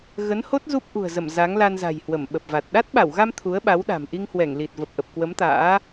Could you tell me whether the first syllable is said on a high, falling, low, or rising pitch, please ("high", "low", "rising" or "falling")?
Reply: rising